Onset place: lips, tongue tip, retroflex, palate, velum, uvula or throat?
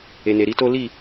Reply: tongue tip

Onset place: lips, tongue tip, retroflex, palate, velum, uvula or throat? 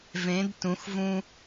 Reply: lips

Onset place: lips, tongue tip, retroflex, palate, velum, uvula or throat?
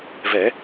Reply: lips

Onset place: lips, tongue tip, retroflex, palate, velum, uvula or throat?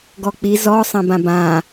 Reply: velum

